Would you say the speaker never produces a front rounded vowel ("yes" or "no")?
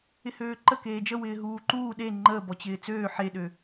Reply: no